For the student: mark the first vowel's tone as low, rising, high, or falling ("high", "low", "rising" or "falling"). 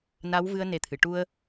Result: rising